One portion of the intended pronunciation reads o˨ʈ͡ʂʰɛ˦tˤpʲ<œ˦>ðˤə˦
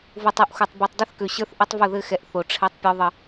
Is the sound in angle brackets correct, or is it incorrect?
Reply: incorrect